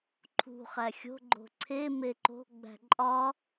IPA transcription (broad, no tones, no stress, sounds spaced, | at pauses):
ǃʰ ṳ χ æ xʲ o̤ ɡ͡ǃ o̤ ǀʰ e m e ǃ o̤ ɡ͡b æ̤ ǃʼ ɒ